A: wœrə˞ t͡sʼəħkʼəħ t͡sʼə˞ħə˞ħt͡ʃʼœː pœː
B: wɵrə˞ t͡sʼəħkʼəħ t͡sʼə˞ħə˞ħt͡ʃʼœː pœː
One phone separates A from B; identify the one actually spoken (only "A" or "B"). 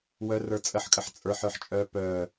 A